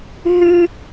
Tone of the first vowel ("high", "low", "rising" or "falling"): high